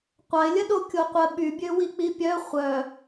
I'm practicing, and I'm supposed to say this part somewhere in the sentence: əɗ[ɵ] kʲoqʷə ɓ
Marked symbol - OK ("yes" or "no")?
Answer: no